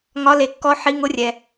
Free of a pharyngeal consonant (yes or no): no